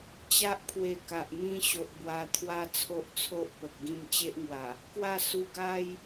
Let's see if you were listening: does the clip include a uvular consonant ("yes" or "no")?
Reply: no